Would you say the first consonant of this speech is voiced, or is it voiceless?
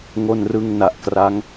voiced